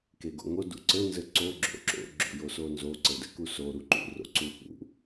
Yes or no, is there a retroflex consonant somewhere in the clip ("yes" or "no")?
no